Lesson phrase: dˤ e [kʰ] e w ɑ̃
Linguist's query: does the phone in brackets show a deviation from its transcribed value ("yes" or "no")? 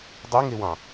yes